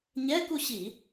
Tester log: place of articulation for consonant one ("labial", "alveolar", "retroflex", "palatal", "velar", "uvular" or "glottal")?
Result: palatal